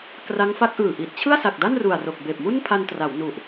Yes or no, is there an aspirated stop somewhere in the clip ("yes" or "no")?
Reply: yes